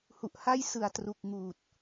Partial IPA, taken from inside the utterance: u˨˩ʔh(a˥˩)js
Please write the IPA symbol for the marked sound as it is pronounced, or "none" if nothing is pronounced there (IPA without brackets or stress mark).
a˥˩